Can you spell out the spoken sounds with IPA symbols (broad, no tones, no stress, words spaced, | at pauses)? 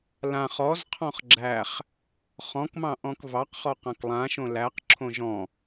lãχ ɔz qʰɔ̃χɡ͡ǁæχ | χɔ̃kmɑ̃ ʔɔ̃kvɑqχɔ qãklˠãʃõ læq ǁʰõʒɔ̃